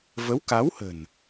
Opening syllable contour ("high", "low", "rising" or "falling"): rising